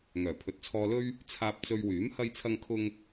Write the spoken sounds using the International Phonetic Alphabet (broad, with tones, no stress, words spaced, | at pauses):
ŋœː˨˩pʰɵ˨t̚t͡sʰɔː˧lɵ˥ɥ | t͡sʰaː˧p̚t͡sɵ˧ɥwyː˨˥m hɐ˥jt͡sʰɐ˥ŋkʰʊ˥ŋ